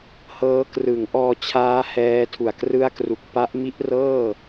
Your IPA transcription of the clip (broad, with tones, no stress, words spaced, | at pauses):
hɤː˦˥krɯ˩˦ŋʔɔː˧t͡ɕʰaː˦˥ hɛː˦˥tʰu˨˩a̯krɯ˥˩a̯kru˨˩k̚ pa˦˥ʔmi˦˥ʔrɤː˥˩